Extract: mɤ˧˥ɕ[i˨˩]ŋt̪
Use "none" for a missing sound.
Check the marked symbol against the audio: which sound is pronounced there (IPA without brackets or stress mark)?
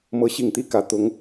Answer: i˨˩